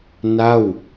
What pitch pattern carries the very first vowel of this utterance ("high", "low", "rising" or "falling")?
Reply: falling